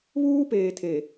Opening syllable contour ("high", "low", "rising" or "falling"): high